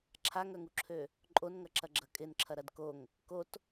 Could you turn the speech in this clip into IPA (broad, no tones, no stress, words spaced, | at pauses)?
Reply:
ǁʰaŋœŋuǁʰø | ǃʼonŋɐǁɐɡ͡ǁɐ kʼɪnǁʰɐɾɐd koŋ | kot